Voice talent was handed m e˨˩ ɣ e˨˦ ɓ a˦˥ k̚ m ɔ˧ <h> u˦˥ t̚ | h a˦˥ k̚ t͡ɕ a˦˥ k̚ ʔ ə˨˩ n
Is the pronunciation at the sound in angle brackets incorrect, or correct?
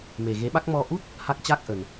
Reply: incorrect